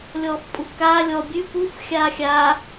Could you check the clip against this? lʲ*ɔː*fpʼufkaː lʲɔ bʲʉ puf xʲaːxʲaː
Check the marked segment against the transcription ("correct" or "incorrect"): correct